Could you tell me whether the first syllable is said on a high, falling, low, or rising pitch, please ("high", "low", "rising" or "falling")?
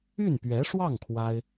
falling